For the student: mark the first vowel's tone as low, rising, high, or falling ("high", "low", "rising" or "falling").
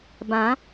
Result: rising